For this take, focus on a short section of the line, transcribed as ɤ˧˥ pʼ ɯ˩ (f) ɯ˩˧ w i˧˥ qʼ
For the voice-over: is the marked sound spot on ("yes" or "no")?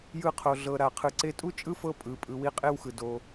no